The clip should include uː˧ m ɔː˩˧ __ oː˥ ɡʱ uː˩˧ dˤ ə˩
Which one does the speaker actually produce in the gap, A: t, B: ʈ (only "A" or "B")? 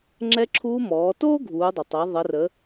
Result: A